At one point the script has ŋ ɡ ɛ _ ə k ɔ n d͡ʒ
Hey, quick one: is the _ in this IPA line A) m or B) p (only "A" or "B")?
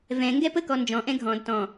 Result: B